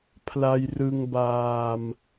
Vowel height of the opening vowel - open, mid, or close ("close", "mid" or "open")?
open